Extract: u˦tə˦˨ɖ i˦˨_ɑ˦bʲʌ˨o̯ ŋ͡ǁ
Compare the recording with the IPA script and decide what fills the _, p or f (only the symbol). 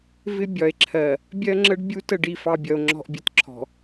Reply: f